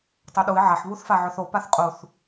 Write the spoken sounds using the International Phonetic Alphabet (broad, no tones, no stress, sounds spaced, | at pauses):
tˤ œ ɗ u ɪ̯ ʕ a ħ β u θ f a ʕ œ θ o p a θ qʼ u θ